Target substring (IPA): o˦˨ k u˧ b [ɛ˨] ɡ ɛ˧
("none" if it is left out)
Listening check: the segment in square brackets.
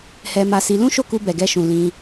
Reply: ɛ˨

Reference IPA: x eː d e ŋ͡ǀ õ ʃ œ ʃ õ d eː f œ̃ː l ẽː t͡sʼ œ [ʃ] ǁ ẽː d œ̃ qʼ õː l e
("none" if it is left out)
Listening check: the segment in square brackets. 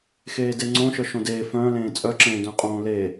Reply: none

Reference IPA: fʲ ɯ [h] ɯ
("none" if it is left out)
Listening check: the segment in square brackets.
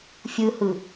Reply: h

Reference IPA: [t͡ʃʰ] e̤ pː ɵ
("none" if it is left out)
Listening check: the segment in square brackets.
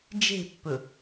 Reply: d͡ʒ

